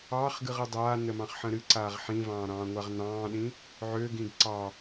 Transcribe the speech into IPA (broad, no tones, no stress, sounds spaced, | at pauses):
ɑː χ ɡ ɨ ʁ ə dˤ aː n ə m ɑ̃ χ ħ ə̃ ɾ ɨ ǀ aː ʁ ħ ĩ v ɑ̃ː ɾ ɑ̃ː ŋʷ a ʁ n ɑ̃ː ɗ ĩ | ʕ ø ɡ ĩ ɡ ǀ ɑ